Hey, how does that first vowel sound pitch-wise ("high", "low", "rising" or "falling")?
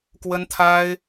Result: high